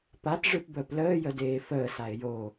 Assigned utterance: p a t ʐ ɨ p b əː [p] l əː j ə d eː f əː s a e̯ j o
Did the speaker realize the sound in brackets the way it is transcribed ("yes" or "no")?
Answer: yes